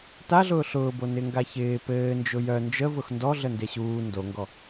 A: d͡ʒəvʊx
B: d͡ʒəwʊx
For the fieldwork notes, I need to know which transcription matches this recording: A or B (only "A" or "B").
A